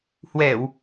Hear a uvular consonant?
no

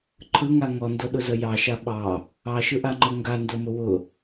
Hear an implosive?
yes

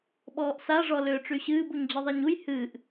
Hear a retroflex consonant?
yes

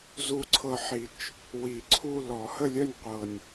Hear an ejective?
no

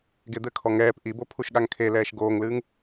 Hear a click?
no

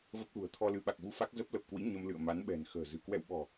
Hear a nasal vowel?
no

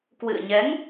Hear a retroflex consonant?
no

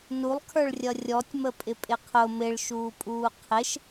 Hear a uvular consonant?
yes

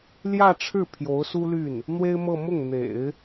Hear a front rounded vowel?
yes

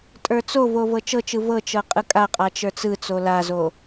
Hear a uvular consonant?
yes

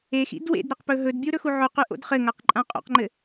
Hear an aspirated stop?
no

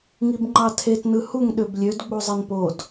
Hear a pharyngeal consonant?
no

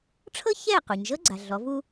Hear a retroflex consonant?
yes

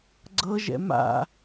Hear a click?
yes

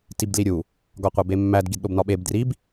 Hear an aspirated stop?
no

